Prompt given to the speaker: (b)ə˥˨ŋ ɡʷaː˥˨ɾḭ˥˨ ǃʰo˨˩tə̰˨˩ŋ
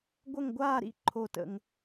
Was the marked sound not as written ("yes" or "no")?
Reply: yes